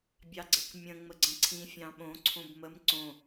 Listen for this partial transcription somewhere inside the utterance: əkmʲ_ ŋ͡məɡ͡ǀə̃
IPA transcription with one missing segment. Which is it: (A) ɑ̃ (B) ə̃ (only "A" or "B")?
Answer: B